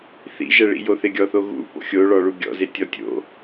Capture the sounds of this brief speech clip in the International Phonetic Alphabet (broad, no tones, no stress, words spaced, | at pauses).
θḭʒɛɭḭjo θɪɡʲɔθoɣṵ po̰xʲoɭɔ ɭuɡʲɔ̰ze tʲɔtʲo̰